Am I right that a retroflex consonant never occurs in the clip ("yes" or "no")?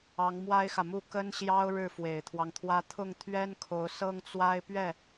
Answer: no